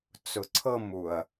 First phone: t͡s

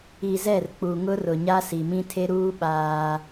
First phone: i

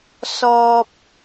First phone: s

